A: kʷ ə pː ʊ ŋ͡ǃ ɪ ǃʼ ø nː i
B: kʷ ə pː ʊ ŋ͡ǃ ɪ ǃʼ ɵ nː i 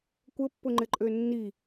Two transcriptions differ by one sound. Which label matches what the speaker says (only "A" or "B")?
A